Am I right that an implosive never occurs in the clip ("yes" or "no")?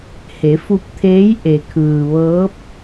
yes